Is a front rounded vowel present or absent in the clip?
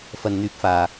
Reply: present